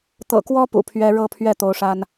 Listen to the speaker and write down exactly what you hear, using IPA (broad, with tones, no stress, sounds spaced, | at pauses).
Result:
t̪ ɤ̰˨˩ k w ɔ˥ p ṵ˨˩ pʰ ɥ ɛ˥ ɻ ɤ˥˧ pʰ ɥ ɛ˥˩ t̪ o˧˥ ʊ̯ ʂ a˥ n